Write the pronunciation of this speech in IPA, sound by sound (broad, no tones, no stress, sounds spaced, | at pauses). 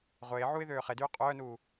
ʁʷ eː ʕ u ɪ̯ ð øː χ e d yː qʼ œː n uː